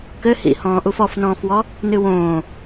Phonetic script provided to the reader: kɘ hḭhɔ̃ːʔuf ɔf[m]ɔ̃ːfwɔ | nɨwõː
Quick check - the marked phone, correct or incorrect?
incorrect: n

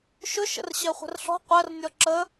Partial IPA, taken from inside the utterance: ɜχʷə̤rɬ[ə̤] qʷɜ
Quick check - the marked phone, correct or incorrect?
incorrect: ɔ̤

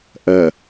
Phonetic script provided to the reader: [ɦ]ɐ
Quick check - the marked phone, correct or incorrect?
incorrect: ʔ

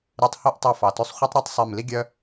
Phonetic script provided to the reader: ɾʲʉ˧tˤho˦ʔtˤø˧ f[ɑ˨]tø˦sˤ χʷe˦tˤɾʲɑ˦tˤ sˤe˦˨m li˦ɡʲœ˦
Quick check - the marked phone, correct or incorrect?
correct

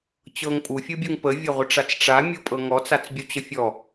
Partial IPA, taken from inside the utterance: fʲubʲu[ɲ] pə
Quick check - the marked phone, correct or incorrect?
incorrect: ŋ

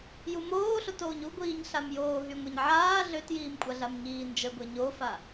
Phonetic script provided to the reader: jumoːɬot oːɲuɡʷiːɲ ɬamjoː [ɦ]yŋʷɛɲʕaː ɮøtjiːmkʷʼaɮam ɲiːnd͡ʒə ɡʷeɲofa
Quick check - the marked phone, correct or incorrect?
correct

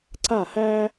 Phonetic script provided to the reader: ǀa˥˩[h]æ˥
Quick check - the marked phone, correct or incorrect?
correct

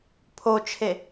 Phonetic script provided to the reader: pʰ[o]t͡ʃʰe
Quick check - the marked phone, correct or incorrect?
correct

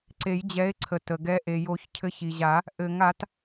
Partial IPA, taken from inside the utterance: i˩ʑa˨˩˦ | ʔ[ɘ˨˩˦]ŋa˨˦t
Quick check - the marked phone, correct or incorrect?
correct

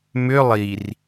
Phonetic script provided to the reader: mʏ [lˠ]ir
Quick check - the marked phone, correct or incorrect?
correct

